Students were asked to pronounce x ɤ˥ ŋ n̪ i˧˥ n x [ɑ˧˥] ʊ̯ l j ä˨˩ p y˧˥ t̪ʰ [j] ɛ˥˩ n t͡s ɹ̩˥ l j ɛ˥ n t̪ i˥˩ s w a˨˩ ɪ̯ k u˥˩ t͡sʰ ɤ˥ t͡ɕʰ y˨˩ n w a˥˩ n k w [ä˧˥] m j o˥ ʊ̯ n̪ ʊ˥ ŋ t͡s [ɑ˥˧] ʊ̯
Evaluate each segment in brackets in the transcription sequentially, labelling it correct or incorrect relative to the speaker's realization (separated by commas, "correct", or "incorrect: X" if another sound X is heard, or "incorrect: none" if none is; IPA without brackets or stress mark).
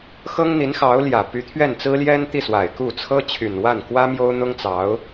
correct, incorrect: ɥ, incorrect: ä˥, incorrect: ɑ˧˥